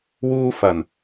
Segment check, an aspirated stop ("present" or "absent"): absent